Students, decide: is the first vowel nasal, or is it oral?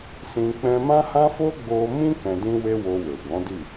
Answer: nasal